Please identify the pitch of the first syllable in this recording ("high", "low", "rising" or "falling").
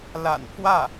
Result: low